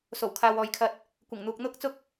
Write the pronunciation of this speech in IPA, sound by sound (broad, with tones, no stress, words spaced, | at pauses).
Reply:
so˨˩wkʰaː˨w ɔː˨jkʰɐ˧t̚ | kʷɪ˨˩ŋn̪uː˨k̚n̪ʊ˥k̚t͡sʊ˥k̚